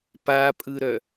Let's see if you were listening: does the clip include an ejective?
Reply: yes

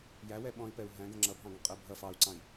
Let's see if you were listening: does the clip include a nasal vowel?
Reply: yes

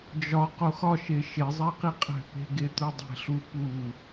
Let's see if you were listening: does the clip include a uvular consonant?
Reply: yes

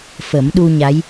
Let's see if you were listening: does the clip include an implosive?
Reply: yes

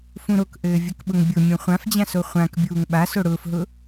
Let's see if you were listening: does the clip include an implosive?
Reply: yes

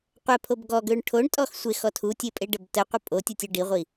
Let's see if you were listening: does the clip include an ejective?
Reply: yes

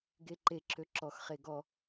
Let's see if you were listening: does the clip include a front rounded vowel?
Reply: yes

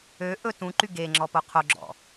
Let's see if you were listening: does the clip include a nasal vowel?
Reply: yes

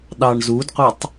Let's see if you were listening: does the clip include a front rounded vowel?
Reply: no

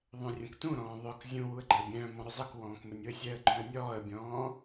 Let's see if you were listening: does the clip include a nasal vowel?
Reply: yes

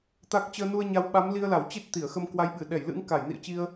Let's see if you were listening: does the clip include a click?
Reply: no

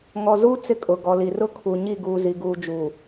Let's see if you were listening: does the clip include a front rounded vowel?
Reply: no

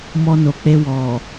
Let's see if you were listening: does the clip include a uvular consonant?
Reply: no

